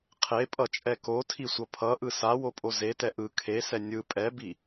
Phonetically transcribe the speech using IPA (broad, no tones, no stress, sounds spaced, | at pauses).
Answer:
qʰ e pʼ ʌ t͡ʃʼ ɛ k o tʰ i sʷ ʌ pʰ ʌ ʔ ɯ s a w o pʼ o z e t ɛ ʔ ɯ kʰ e s ɛ nʲ ɯ pʼ ɛ b i